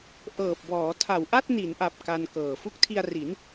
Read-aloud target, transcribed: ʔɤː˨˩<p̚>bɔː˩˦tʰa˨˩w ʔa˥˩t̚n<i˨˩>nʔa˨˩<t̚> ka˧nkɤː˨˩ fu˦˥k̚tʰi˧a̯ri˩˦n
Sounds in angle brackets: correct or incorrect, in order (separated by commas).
correct, incorrect, incorrect